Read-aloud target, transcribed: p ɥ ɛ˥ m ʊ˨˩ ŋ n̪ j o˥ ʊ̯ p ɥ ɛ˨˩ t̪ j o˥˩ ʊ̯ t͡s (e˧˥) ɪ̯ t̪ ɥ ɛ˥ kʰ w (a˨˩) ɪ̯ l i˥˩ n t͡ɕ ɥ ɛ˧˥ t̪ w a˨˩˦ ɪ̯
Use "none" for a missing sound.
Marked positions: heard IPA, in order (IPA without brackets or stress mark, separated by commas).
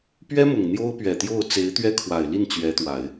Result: e˧˥, a˨˩